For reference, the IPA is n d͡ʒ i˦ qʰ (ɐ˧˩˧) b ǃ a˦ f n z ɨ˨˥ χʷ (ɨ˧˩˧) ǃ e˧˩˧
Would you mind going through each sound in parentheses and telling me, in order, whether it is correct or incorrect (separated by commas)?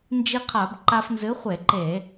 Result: incorrect, incorrect